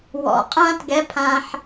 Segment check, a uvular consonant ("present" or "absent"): present